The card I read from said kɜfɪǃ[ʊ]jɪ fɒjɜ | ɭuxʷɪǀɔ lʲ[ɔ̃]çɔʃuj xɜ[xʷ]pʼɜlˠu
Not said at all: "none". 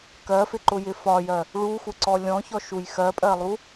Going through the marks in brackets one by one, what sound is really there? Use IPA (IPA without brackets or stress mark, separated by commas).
ʊ, ɔ̃, none